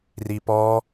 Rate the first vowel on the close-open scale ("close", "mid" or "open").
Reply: close